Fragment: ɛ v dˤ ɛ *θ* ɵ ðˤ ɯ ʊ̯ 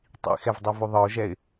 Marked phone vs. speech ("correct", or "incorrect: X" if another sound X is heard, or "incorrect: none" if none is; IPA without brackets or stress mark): incorrect: v